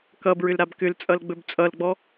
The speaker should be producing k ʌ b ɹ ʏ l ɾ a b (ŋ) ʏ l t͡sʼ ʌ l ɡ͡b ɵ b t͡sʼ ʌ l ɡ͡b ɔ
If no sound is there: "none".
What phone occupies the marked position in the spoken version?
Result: k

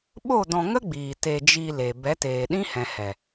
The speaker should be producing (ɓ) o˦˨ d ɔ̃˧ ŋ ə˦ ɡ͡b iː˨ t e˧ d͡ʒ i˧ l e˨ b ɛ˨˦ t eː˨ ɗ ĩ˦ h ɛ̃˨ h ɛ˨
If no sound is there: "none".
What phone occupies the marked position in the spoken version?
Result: ɓ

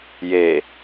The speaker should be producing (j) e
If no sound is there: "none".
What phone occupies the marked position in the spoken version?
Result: j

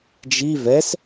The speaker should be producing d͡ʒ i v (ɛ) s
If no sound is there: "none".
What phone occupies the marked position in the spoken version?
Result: ɛ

